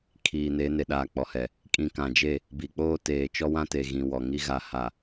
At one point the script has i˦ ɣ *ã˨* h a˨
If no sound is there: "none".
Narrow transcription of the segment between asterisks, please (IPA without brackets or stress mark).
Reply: a˨